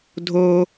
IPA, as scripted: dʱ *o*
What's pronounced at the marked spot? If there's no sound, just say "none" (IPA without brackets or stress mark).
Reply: o